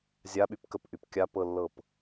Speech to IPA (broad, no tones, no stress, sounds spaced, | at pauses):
zʲ a ɓ y p k ə p ʔ y p kʲ a p ɤ lː ɤ p